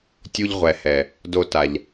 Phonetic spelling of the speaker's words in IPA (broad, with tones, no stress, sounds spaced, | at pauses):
tʲ u˧ ʎ ʁʷ ɛ˨ h ɛ˨ | d o˧ t a˨ ʎ